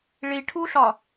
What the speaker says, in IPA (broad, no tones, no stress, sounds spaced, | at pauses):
ɭ i ʈʰ u ɬ ɒ